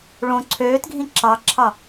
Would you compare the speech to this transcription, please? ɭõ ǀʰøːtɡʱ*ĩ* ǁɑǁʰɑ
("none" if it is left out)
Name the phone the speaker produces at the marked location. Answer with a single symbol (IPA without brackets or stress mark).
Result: ĩ